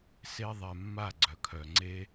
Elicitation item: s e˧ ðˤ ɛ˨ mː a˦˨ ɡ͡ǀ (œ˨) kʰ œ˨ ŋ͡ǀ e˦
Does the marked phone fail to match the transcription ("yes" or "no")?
no